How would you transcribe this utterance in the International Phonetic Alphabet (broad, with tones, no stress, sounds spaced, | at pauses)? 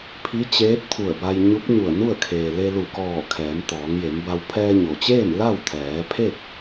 pʰ i˧˥ t͡ɕ eː˧˥ t̚ t̪ʰ u˧˩ ə̯ b a˧ j ɲ u˧˥ p̚ ɲ u˧˩ ə̯ n u˥˨ ə̯ kʰ eː˩ l e˧ l u˧˩ k ɔː˧˩ kʰ ɛː˩˧ m t̪ ɔː˩˧ ŋ j e˩˧ m b a˧ w pʰ ɛː˧ ɲ o˩ t͡ɕ eː˥˨ m l a˥˨ w t̪ʰ ɛː˩˧ pʰ e˥˨ k̚